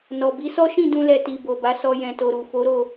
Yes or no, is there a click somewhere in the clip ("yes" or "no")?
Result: no